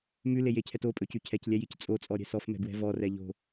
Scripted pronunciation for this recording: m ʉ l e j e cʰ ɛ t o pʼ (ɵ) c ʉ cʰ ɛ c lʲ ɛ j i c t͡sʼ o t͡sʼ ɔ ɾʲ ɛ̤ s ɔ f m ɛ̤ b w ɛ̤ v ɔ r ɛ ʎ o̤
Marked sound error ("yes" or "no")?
no